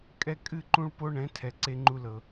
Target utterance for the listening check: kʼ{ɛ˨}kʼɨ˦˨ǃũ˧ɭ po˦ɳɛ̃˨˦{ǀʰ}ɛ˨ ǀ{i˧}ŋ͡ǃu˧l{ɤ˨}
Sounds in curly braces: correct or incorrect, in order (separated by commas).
incorrect, incorrect, incorrect, correct